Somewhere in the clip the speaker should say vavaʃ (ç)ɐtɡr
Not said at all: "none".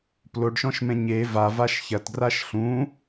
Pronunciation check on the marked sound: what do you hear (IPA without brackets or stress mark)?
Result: ç